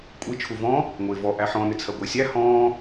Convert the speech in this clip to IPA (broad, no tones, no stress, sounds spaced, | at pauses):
kʷʼ i t͡ʃʰ u v ɔ̃ | ŋʷ ɪː v ɔ ʔ æ ħ ɔ̃ n ɪ t͡sʰ ɜ ɡʷ ɪː sʲ æ h ɔ̃ː